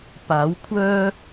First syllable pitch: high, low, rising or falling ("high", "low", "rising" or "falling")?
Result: rising